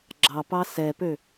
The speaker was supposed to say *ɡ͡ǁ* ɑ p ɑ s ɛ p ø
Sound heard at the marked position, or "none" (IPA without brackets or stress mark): ɡ͡ǁ